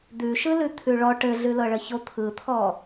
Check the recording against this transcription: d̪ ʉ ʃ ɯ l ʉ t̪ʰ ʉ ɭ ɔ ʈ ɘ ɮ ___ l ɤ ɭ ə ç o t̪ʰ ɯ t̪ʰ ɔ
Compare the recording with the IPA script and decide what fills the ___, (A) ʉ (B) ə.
A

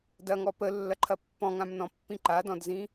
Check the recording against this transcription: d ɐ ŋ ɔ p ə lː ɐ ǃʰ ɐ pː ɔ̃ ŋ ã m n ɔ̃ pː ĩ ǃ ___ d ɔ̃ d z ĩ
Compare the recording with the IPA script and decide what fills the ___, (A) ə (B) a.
B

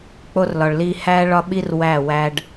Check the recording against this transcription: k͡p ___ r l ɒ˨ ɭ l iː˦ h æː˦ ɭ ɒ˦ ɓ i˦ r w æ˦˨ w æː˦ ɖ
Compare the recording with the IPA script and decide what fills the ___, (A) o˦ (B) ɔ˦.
A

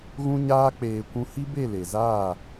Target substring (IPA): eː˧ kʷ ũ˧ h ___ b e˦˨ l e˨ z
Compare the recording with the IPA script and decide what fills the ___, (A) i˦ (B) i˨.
A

